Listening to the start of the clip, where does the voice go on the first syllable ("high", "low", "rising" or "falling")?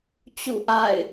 falling